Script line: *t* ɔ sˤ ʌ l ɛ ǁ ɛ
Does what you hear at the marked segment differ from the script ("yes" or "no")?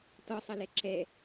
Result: no